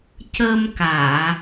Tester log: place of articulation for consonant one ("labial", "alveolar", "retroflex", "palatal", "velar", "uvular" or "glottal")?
palatal